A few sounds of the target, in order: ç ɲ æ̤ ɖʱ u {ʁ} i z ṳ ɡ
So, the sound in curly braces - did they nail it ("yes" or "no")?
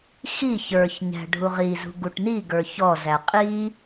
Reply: yes